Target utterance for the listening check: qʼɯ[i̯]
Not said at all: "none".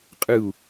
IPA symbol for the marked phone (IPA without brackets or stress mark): u̯